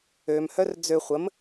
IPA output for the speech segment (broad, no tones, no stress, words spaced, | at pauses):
ømhœr d͡zø χʷəm